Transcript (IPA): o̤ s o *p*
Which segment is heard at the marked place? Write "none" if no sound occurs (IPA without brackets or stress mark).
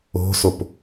p